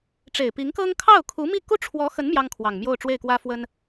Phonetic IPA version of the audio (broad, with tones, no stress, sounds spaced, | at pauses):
ʈ͡ʂ e˨˩ ɪ̯ p i˧˥ ŋ k ɤ˥ ŋ kʰ ɑ˥˩ ʊ̯ kʰ u˧˥ m i˥˩ k u˥ ʈ͡ʂʰ w ɔ˧˥ x ə˧˥ n m j ɑ˥ ŋ kʰ w ɑ˨˩ ŋ m j o˥˧ ʊ̯ ʈ͡ʂ w e˥˩ ɪ̯ k w ä˥ f w ə˥ n